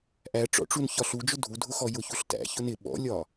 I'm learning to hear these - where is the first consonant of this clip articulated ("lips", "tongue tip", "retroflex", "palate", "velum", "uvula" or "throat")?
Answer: throat